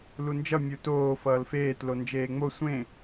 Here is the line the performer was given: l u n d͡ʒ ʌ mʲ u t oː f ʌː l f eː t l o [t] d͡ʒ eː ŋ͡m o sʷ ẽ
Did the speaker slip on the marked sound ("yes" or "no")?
yes